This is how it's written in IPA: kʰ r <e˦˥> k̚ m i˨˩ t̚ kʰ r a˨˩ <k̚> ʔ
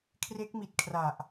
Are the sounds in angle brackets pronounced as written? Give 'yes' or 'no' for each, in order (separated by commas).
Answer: yes, no